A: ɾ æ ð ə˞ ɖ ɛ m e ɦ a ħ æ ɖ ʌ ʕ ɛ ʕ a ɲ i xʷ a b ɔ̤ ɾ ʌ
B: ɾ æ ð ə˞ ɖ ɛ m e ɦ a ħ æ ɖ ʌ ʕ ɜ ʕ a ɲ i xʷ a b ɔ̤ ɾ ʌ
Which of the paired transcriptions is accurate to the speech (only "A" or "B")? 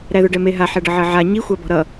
B